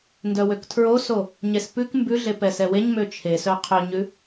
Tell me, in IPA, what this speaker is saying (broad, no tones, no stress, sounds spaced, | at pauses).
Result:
n d œ w ø k tʰ ɹ o s o | ɲ e s p ʉ k m b ʉ ɮ e p ɛ s ɛ w e ɲ m ø t͡ʃʰ e s œ qʰ ɵ ɲ ʉ